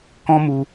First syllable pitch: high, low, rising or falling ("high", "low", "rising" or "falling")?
high